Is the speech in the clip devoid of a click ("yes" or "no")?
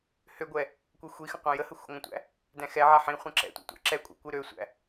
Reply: no